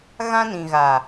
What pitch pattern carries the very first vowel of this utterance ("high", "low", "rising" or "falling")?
high